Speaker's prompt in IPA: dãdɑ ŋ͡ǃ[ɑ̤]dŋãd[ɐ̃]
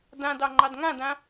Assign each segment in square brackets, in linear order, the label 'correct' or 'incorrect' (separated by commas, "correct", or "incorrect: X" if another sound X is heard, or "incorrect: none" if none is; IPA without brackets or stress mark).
incorrect: ɑ, incorrect: ã